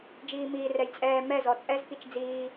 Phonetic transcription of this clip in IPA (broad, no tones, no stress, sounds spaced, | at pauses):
d͡ʒ iː m iː r ɛ j t͡sʼ ɛː m ɛ z ɔ t͡sʼ ɛ z k i t͡ʃ d͡z iː